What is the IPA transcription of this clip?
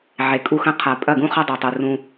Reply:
ʕe˨kʼu˦xɐ̃˦ qʰa˨pʼɐ˦˨ɡũ˦χɐ˦ dˤɵ˨tˤu˨ rũ˦

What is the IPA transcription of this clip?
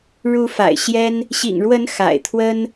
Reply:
ɻu˧˥fa̰˨˩ɪ̯ɕjɛ˥n | ɕḭ˨˩ŋɻwə˧˥n xa̰˨˩ɪ̯t̪ʰwə˥n

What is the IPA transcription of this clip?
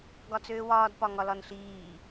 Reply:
ɡɒt͡søːwɒːd pɒŋɒlɒnɬiː

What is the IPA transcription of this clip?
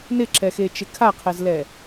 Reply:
nɪǁɛxet͡ʃɪ kʰaqʰɛzlɛ

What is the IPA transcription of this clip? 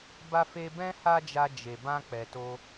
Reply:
ba˧fe˧ bɛ̃˦ ha˦d͡ʒa˧ d͡ʒe˨bã˧ k͡pɛ˨to˧

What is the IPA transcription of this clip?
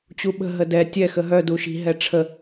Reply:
t͡ɕuɓə̤ ɦədɛ tʲɛ xəɦœ duʃi̤ ɦɛʈ͡ʂʰə

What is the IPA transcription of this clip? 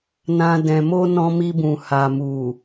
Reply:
nã˧ dɛ̃˨mo˧ nɔ̃˧mi˧bũ˨ ha˨mu˨

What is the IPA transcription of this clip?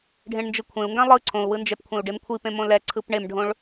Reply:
ɖʱẽɳnd͡ʒɯkʷʰẽu̯ŋɡã lˠɯ ǀʰõu̯wɯnd͡ʒɛpkʷʰẽu̯ ɖemkʷʰipẽmõ lɛ ǀʰɯpɳemɖʱõɭ

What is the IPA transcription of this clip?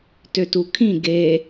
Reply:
tøtukʰĩ ɡe

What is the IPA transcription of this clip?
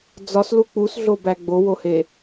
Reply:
d͡zɒslu k͡pusɮobæ ɡ͡bowohe

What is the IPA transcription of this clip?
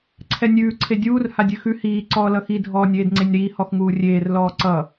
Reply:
ǀʰɛnʲʉː ǀʰedʲuːr hadʲʉxʉ hiː ǀɔːlʌxi dʱɔːnʲeːdŋ͡ǀenʲɾiː hɔxŋuːrʲeːr lɔːǀʌ

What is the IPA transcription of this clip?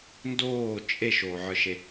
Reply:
ndoː t͡ʃʼeʃoːʕə˞ʃe

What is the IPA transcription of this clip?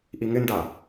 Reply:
ʔiŋɪnda

